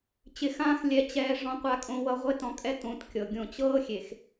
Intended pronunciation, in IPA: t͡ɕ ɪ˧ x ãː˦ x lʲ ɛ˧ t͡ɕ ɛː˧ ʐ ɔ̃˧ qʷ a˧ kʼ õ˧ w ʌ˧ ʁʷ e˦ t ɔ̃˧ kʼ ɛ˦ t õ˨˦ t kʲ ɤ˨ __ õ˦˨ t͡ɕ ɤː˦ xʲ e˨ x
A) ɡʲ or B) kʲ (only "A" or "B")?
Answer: A